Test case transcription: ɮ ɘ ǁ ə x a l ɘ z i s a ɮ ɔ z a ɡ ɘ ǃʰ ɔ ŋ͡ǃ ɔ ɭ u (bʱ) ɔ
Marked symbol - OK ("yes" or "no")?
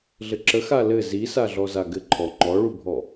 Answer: yes